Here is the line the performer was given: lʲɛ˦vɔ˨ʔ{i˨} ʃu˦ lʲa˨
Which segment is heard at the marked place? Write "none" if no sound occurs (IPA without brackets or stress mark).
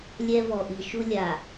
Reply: i˨